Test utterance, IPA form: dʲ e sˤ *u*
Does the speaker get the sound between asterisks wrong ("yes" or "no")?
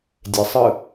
yes